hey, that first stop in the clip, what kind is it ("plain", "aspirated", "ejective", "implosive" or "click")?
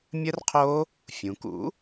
aspirated